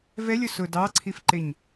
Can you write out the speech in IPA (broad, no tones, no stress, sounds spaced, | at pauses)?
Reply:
v ɛ lʲ ʊ s ʊ d ɑ ǀʰ i f ǃ ɪ ɲ